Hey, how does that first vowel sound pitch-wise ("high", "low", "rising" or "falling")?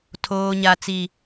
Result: low